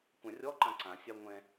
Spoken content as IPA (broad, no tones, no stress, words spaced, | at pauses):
kʷãrʲɔǃã ǀãsʲa ŋʷɛ̃